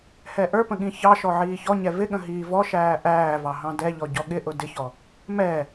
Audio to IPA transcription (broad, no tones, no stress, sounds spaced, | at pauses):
h ɛ ʔ ə˞ p ə̃ ɠ ĩ ç ɑ ʃ ɔ ʕ iː ç ɔ ɲ ɛ v ɪ ɠ ə̃ ɦ iː v ɔ ʃ æː ʔ æː v ɑ ɦ ɑ̃ d ɛ ʎ ɔ ɟ ɔ ɠ ɪ ʔ ʊ d ɪ ç ɔ | m ɛ